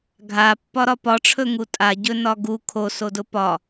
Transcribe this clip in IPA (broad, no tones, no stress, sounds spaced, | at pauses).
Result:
ɡʱ a pː ɒ ɾ ɒ p ɒ ʈ͡ʂʰ ɵ ŋ u tʼ a ɟ ɵ n ɒ ɡ u kʰ o s o d ʊ p ɒ